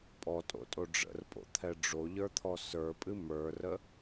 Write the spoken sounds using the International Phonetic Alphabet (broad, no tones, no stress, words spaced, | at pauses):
pʼɔtʼo̰tʼo ɖ͡ʐə̰rpʼo̰t̪ʰɛ ɖ͡ʐoʎə˞t̪ʰɔ sə˞pʼɨ mə˞rə